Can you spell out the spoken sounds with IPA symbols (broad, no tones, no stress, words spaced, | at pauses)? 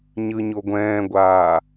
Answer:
ɲɯɲoɡʷɛ̃ːɡʷaː